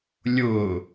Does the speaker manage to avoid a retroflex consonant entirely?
yes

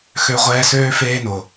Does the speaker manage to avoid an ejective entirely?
yes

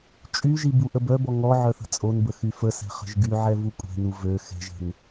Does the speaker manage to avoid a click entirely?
yes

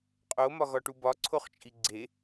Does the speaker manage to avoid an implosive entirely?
yes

